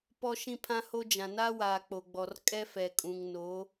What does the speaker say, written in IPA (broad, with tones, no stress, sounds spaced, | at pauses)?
p ɔ˦ ʃ ĩ˦ pʰ ã˦ h o˦ d͡ʒ ã˨ n aː˦ w aː˨ k͡p o˨ ɡ͡b ɔ˨ r kʼ ɛ˦ f ɛ˨ kʼ ũ˨ ŋ n o˨˦